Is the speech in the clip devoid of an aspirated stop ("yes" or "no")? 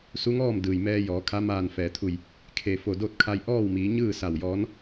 no